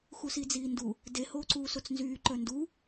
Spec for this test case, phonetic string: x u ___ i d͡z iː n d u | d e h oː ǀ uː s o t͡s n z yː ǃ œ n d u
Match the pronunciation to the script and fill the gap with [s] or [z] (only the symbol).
s